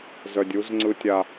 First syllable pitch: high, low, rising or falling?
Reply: low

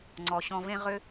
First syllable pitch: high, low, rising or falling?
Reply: low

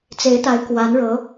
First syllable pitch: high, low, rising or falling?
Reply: rising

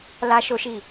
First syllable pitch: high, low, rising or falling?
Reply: high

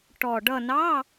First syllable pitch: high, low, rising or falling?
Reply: low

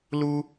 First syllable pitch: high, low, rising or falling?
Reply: high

